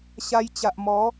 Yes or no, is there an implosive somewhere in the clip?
no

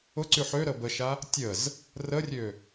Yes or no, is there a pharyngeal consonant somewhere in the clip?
yes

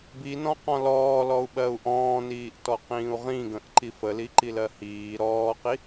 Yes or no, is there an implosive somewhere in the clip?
yes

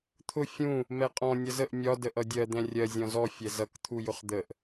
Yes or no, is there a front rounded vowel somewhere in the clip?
no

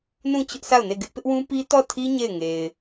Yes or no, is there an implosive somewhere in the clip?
no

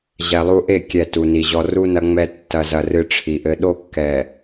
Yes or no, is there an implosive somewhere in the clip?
yes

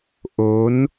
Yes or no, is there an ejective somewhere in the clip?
no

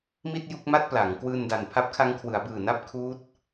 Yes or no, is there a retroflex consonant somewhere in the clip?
no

